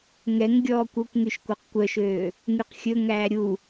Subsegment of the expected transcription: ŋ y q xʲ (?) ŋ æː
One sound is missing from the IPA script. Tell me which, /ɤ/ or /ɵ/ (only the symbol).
ɵ